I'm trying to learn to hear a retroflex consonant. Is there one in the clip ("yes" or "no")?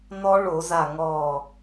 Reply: yes